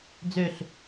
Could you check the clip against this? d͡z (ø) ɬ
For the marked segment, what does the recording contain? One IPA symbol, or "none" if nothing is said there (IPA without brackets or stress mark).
ø